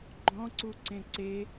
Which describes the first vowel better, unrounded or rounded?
rounded